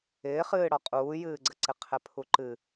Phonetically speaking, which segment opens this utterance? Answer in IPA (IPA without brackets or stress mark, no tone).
ɪː